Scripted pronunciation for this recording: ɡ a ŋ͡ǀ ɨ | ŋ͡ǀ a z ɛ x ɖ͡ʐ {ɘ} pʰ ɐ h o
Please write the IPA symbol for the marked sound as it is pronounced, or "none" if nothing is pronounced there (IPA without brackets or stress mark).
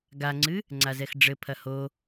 ɘ